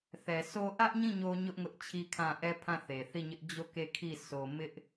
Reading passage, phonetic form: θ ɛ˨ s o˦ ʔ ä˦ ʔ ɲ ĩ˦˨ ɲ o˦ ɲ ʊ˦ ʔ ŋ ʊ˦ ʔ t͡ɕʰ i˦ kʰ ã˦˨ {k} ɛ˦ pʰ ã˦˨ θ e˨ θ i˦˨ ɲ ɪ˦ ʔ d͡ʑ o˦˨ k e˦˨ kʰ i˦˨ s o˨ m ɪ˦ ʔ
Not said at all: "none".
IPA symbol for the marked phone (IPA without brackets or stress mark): ʔ